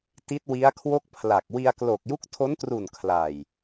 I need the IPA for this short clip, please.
t i˦˥ t̚ w i˦˥ a̯ kʰ w o˥˩ k̚ pʰ l a˨˩ k̚ w i˧ a̯ k l o˨˩ k̚ j u˦˥ k̚ tʰ o˦˥ n t r u˨˩ n kʰ l a˨˩ j

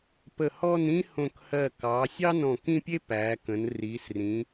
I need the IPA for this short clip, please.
p ə˧˩ h ɔ˥˧ n ĩ˥ h õ˧˩ k h ɜ˧˩ k ɑ˩˧ sʲ ɑ˥ n ɔ̃˧˩ k ĩ˥˧ pʲ e˥ p æː˩˧ k ə̃˩˧ n r iː˩˧ s r ĩ˩˧

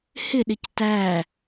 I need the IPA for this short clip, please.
h ɪ ɗ ɪ c t æ

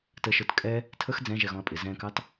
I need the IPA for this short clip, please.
t ə ʃ ə˞ t kʼ ɛ | tʰ ə x d͡z ɛ̃ ʒ ɛ ɣ ɔ̃ ɐ̯ pʼ ɪ z ɛ̃ k ɑ t

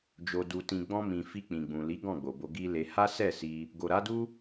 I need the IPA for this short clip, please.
d͡ʒ o˨ d u˨ t ĩ˨ ɡ͡b ɔ̃˧ m ĩ˨ f i˧ k͡p ĩ˨ ɡ͡b ũ˨ l i˨˦ ɡ ɔ̃˦˨ ɡ͡b o˨ b o˧ ɡ i˦ l e˧ h a˦ s ɛ˦˨ s i˧ | ɡ o˨ ɾ a˨˦ d u˦

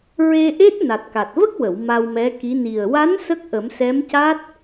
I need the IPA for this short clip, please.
ɹ e˧ ʔ e˦˥ t̚ n a˨˩ t̚ k a˨˩ t̚ v ə˦˥ k̚ w ə˨˩˨ w m a˧ w m ɛ˧˥ k i˧˥ n i˨˩ ə̯ w a˧˥ n s ə˦˥ k̚ ʔ ə˨˩˦ m s ɛ˧˥ m c a˦˥ t̚

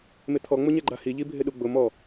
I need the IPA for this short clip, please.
m ɪ t̪ʰ ɔ ŋ͡m ʊ ɲ ɛ ɡ͡ǃ a h i ʎ i bʱ ɪ ɗ u ɡ͡b ʊ m ɔ

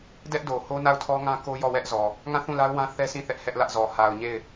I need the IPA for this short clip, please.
d ɛ˦ ʔ d o˨ h o˦ n a˦˨ ʊ̯ tʰ ɔ˦ ŋ ã˦ k o˦ j ɔ˦˨ w ɛ˦ ʔ z ɔ˨ | ŋ ã˦˨ θ ũ˦˨ l a˦ ʊ̯ w ã˦ θ ɛ˦ sʰ ĩ˦˨ θ ɛ˦ ʔ h ɛ˦ ʔ l ä˦ ʔ z ɔ˨ h a˨ ʊ̯ ɲ e˦˨ ɪ̯

